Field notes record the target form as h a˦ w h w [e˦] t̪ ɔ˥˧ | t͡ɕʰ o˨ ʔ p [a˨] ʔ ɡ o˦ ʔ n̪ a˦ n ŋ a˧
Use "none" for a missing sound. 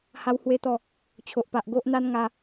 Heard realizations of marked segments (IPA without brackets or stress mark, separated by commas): e˦, a˨